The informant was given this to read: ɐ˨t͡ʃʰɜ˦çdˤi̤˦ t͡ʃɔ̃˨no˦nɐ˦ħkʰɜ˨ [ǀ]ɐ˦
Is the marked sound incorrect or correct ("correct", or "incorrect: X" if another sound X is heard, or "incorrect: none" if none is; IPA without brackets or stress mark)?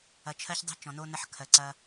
correct